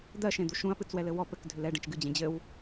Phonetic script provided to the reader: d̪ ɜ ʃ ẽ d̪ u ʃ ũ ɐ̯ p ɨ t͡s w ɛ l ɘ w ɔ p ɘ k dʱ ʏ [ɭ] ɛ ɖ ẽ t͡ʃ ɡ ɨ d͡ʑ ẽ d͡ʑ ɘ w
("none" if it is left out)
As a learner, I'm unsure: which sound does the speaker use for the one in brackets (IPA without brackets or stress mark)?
l